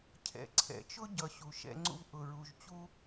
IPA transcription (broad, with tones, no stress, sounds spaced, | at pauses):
cʰ ɛ̰˨ ǀʰ ɛ̰˨ t͡ʃ ʊ˦ ɟ ʌ˨ ɕ u˨ ʃ ɛ̰˦ ŋ͡ǀ ṵ˦ v ʔ ʊ˨ ɹ u˨ ʒ t͡ɕ u˦